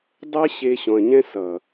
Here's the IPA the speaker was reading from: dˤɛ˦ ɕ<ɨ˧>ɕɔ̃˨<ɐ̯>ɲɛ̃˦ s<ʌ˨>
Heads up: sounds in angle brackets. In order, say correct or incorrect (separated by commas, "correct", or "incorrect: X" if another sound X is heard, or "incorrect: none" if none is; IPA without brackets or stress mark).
incorrect: e˧, correct, correct